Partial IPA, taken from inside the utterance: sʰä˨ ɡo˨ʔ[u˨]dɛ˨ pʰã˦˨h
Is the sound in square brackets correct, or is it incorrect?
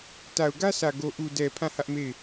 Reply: correct